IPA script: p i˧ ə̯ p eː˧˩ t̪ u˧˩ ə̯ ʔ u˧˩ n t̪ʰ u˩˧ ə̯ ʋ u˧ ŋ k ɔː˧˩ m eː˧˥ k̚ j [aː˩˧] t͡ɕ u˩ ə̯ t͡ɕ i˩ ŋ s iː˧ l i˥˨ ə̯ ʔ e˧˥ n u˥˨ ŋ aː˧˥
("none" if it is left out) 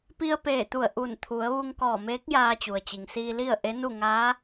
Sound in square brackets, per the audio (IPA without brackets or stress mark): aː˧